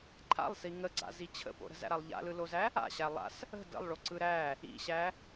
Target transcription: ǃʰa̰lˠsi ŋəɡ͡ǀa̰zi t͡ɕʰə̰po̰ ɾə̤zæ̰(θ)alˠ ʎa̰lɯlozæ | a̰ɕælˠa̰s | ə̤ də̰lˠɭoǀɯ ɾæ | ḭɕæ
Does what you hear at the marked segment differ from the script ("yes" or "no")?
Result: yes